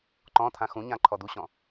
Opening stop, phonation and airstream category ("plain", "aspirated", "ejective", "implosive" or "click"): click